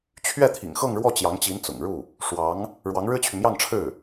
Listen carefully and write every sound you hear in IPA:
t͡ɕʰ ɥ ɛ˥˩ t̪ʰ ḭ˨˩ ŋ x ɤ˥˧ ŋ ɻ w ɔ˥˩ t͡ɕ j ɑ˧˥ ŋ t͡ɕ i˧˥ n t͡s ʊ̰˨˩ ŋ ɻ u˥˩ | ʂ w ɑ˧˥ ŋ | ɻ w ɑ˧˥ ŋ ɻ ɻ̩˥ t͡ɕʰ y˨ m j ɑ˥˧ ŋ ʈ͡ʂʰ ɻ̩˥˩

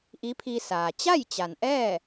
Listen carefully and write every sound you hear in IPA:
ʔ i˧˥ pʰ i˧ s aː˩ t͡ɕ a˥˨ j t͡ɕ a˩ n ʔ ɛː˥˨

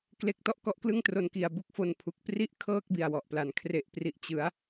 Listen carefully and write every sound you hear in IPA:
k l e˥˩ k̚ t ɔ˥˩ ʔ k ɔ˦˥ ʔ k l ɯ˥˩ ŋ t r o˧ n k i˨˩ a̯ b u˥˩ k̚ f o˧ n pʰ u˨˩ k̚ p r i˥˩ ʔ kʰ ɤː˥˩ k̚ b i˨˩ a̯ w ɔ˨˩ ʔ p l a˩˦ n kʰ r e˨˩ ʔ p r i˨˩ ʔ t͡ɕ ɯ˩˦ a̯

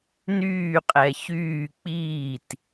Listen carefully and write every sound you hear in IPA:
n yː qʼ ɛ ç yː k͡p iː t

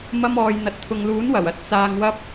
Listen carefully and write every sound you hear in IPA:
m ɐ˧ m ɔː˨ j n̪ ɐ˨ t̚ t̪ʰ ʊ˨ ŋ l uː˨˥ n w ɐ˨˩ w ɐ˨ t̚ t͡s aː˧ ŋ w ɐ˥ p̚

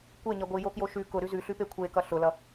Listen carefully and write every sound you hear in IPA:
kʷ e ɲ ʌ ɡʷ i j o k j o ʃ ʉ k ʊ ɾ ʉ z ʉ ɬ ʉ p e kʷʰ e k ʌ ɬ ʊ l ʌ

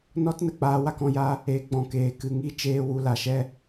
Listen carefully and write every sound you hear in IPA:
n ɔ˦ t n ə˨ k͡p aː˦ w a˦ k ɔ̃˧ j a˦ | e˨˦ ɡ͡b ɔ̃˨ k eː˨ k ɨ˨ ŋ i˧ t͡ʃ eː˧ w u˧ l a˨ ʃ ɛ˦

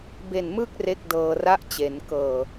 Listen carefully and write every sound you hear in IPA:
b e˨˩ n m ɯ˦˥ k̚ r e˦˥ k̚ d ɤː˧ r a˥˩ ʔ t͡ɕ e˩˦ n k ɤː˨˩

